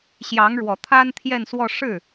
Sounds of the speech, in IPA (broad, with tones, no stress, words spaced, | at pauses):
ɕjɑ˧˥ŋ ɻwɔ˨˩t̪ʰa˥n t̪ʰjɛ˥˧nswɔ˥˧ ʂɻ̩˥˩